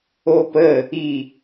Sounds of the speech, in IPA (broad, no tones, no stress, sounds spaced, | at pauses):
o p ə | i